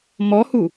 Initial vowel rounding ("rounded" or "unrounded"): rounded